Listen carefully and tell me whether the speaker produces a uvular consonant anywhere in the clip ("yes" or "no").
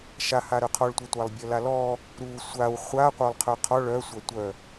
yes